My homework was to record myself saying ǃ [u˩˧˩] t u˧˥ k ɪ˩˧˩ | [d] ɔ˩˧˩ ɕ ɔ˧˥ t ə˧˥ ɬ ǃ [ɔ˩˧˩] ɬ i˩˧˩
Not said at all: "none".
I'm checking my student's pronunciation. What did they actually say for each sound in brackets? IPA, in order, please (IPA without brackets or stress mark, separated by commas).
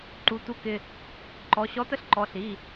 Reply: u˩˧˩, ǃ, ɔ˩˧˩